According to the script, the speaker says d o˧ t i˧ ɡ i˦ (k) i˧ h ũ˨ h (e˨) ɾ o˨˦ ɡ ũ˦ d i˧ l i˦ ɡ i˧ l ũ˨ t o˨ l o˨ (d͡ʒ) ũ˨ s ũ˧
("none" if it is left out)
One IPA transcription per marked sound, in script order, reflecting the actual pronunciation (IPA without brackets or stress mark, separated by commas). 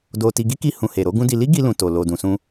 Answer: k, e˨, d